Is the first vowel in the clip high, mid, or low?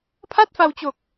low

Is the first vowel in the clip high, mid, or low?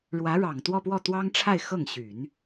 low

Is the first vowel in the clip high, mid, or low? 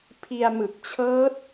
high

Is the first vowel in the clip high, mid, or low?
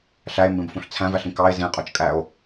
low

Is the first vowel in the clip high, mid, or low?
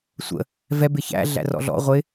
mid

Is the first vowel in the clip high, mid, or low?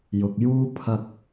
high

